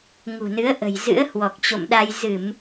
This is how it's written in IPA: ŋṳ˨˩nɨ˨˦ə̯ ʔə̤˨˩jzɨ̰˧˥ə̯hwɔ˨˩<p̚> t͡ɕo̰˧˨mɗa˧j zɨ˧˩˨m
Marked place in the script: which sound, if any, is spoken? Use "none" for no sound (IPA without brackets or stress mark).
k̚